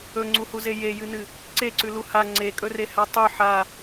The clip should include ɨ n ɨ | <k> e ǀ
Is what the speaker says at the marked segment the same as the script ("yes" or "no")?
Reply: no